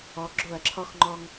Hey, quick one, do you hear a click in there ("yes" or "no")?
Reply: yes